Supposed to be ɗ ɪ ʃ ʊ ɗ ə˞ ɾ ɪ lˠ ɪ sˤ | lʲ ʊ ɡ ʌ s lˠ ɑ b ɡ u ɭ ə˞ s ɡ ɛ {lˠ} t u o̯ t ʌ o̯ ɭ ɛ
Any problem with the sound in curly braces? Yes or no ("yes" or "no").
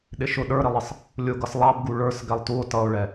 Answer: no